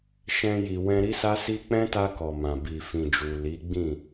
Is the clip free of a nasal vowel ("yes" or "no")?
no